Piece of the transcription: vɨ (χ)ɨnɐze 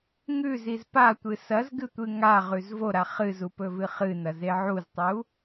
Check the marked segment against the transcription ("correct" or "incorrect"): correct